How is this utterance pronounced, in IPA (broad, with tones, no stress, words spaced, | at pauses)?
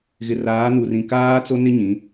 ɣɪ˨raː˨˦nu˨rĩ˨ kaː˦t͡so˦nɪ˦ ɲĩ˨˦